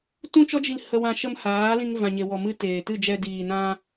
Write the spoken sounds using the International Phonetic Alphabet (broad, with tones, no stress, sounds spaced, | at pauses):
t ũ˦ t͡ʃ ɔ˦ d͡ʒ i˧ l h ə˧ w ã˧ ʃ ə˧ m h aː˨˦ l ĩ˧ ŋ v ã˨ ɲ e˨ w ɔ˨ m ɨ˧ t eː˨ t ɨ˦˨ d͡ʒ ɛ˧ d iː˨ n ã˧